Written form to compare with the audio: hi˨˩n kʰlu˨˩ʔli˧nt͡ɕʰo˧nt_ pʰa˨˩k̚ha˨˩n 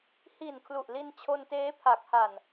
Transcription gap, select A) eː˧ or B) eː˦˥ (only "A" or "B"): B